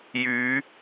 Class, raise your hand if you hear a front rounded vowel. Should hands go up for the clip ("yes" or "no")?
yes